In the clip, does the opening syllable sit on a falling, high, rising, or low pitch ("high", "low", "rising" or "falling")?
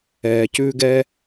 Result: low